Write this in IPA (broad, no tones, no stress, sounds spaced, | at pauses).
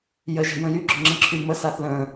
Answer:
j ə ʒ ɛ̤ j ə̃ j y ɡ͡ǁ ʏ ŋ͡ǁ ə̃ ǁʰ y m ə s a θ l ə̃